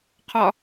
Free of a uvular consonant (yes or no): no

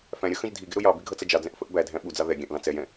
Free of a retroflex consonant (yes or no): yes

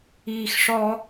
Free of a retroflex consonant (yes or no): no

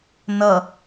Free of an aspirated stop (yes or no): yes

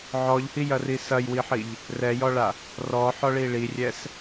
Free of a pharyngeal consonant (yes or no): no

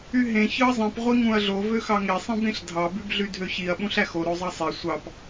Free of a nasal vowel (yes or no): no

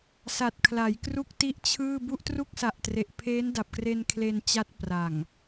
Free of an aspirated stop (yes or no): no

